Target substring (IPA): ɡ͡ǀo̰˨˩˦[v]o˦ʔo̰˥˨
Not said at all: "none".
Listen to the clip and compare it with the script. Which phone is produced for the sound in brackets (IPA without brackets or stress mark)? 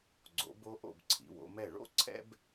b